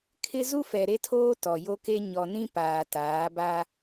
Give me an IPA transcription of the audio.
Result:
kʰ ɪ˦ z u˦ f ɛ˨ ɾ e˦ tʰ oː˦ t ɔ˨ j o˦ k e˦ ɲ ɔ˨ n ĩ˦ p aː˨ t aː˨˦ b a˦

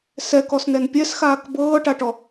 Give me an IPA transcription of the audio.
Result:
s ɛ k ɔ s n ɛ n pʲ ɛ s x aː k b ɤː ʈ a ʈ ɔ

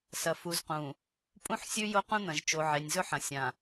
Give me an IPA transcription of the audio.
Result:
s ɐ˨ f u˨ z q ũ˨ | pʼ ũ˦ ħ sʲ ʉ˦ j o˦ q ũ˦ n̪ ɐ̃˨ ʒ t͡ʃ o˨ ʕ e˨ nʲ z ɵ˦ ħ ɐ̃˨ sʲ ã˨

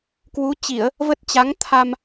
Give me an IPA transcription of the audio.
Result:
k w u˨˦ t͡ɕ i˧˩˨ ə̯ | v ə˦˥ t̚ t͡ɕ a˨˦ ŋ t̪ʰ a˧ m

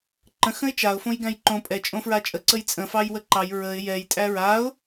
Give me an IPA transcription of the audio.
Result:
ǃ ə̃ x ə̃ ɪ̯ t͡ʃ a ʊ̯ f õ j ɡ æ̃ j ǃ õ pʼ ɛ t͡ʃʼ õ f ɹ a t͡ʃʼ ə ǀ ə j t͡sʼ ə̃ f ɑ j w ə ǃ ɑ j ɹ ə ɪ̯ j ɛ j tʼ æ ɹ a ʊ̯

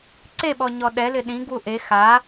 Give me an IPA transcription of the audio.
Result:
ǀ e ɓ ɔ ɲ ɔ ɗ ɛ l ɪ ɗ ĩ ɡ w u ʔ e x a

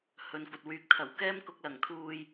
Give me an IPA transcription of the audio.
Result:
h ɵ˨ n kʷ ɐ˨ t̚ w yː˨˥ k̚ t̪ʰ ɐ˨˩ w k ɛː˥ m k ʊ˧ k̚ l ɐ˨˩ ŋ t̪ʰ uː˧ j

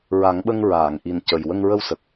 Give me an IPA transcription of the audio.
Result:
ɹ a˨˩˦ ŋ ɓ ə˧ ŋ ɹ aː˨˩˨ ŋ ʔ i˨˩ n c ə˨˩ j w ə˧ ŋ ɹ ə˧ w s ə˨˩ k̚

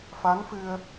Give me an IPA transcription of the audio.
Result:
f a˧˥ n f ɨ˧ ə̯

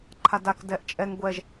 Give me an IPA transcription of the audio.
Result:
ǃʰ a d a k d ɛ ʔ t͡ʃʼ ɛ ŋ ɡʷ ɛ ʒ

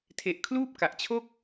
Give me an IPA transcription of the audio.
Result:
tʰ e˨˩ ʔ kʰ l uː˥˩ p̚ k a˨˩ ʔ t͡ɕʰ o˥˩ k̚

